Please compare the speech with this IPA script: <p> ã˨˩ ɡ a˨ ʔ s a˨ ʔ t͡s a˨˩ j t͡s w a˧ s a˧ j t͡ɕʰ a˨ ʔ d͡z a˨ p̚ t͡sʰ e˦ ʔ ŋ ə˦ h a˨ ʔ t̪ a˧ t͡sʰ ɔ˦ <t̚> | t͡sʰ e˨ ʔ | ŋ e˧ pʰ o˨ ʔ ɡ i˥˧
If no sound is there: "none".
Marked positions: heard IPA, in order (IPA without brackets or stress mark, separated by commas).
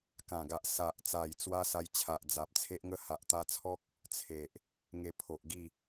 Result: k, k̚